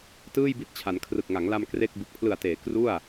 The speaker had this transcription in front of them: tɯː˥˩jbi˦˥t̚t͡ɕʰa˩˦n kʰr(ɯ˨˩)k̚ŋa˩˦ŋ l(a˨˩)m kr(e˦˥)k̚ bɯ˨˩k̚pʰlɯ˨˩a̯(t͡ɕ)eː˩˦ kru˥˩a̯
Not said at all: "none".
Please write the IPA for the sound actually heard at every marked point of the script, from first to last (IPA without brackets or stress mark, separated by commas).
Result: ɯ˨˩, a˧, e˥˩, t